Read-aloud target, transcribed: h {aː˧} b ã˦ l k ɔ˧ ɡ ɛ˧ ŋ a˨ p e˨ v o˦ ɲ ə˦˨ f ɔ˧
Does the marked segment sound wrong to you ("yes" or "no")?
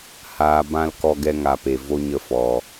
no